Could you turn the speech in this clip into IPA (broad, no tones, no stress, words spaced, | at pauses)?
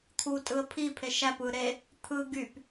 t̪ʰu tʼɯə̯pʰi pʰeʃæp ɯ ɾe | t̪ʰɯ ɡyp